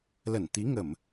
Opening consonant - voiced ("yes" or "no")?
yes